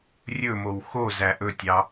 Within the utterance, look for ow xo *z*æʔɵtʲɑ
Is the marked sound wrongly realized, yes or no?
no